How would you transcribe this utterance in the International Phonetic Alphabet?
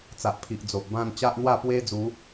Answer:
t͡s a˨ ʔ pʰ i˨ ʔ d͡z o˨ ʔ b ã˥˧ n t͡ɕ a˦ ʔ n̪ w a˥˧ p w e˦ d͡z u˨˦

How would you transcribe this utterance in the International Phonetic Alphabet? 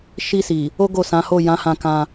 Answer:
ʃ i˧ s i˨ | o˦ ɡ o˦˨ s ã˨˦ h o˦˨ j ã˨˦ h ã˧ k ã˧

